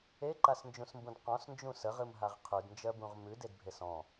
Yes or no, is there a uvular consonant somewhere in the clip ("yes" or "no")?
yes